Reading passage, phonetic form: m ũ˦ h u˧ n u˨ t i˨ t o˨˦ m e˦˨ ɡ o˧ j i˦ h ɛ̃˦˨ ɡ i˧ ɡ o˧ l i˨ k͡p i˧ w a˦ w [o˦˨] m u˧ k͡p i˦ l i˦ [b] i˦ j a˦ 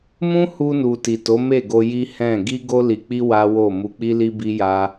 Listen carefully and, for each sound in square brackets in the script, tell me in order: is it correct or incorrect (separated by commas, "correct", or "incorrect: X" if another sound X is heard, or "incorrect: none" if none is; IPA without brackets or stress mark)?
correct, correct